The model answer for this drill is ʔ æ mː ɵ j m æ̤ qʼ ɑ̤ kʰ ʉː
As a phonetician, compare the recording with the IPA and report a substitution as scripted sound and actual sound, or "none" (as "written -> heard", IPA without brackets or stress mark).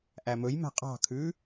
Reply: mː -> m